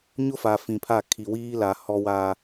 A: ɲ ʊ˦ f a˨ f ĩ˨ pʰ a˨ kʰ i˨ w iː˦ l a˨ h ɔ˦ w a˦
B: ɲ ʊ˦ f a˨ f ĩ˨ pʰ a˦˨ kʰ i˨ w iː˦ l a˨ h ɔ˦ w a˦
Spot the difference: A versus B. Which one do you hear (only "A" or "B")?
B